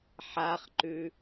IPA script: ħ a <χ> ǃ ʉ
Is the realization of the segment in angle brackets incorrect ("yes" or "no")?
no